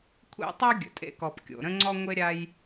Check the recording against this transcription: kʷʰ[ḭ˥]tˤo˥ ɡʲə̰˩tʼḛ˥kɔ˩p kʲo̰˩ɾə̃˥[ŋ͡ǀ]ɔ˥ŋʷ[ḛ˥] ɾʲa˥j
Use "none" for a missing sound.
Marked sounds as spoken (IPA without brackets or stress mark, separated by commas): ḛ˥, ŋ͡ǀ, e˥